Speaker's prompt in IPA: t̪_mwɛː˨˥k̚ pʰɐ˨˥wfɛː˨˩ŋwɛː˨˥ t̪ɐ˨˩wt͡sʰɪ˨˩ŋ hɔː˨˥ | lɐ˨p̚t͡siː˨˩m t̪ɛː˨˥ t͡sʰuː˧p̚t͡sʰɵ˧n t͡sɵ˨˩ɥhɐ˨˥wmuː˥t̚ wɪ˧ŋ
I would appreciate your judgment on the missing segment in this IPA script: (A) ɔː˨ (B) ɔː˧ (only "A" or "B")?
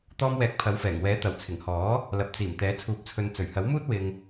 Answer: B